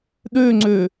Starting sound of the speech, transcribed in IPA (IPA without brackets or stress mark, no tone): ɗ